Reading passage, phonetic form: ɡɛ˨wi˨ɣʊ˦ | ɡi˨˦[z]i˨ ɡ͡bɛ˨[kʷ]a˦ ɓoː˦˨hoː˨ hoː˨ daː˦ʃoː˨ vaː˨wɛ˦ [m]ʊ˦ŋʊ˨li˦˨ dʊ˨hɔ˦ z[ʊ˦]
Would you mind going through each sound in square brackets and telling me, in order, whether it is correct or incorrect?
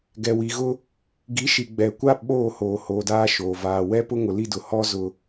incorrect: ʃ, correct, incorrect: p, incorrect: ʊ˨

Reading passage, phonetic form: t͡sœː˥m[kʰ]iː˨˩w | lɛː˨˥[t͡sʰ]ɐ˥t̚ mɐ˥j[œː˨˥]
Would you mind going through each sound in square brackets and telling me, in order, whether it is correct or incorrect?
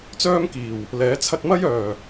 incorrect: k, correct, incorrect: œː˨˩

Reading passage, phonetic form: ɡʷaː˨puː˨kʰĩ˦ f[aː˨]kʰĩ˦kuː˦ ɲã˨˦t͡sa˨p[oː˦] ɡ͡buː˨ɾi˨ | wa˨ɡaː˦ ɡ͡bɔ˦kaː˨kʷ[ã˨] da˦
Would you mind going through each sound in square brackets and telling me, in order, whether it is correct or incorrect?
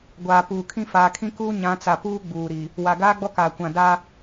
correct, incorrect: uː˦, correct

